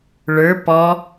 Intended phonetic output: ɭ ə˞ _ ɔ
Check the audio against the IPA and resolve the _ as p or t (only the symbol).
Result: p